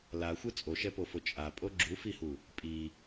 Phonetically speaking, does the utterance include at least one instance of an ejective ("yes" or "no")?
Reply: yes